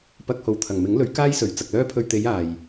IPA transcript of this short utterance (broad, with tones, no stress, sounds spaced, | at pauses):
p ɐ˧ k̚ h o˨ w t̪ʰ ɐ˨˩ ŋ m ɪ˨˥ ŋ l ɵ˨˥ ɥ k aː˥ j s ɵ˨˩ ɥ t͡s ɐ˨ k̚ l œː˥ pʰ ɵ˧ ɥ t̪ e˨˧ j aː˨ j